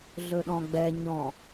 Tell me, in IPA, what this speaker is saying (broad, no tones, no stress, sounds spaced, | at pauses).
ɮ ɵ ɗ ɔ̃ ɡ͡b ɛ ɲ ɔ̃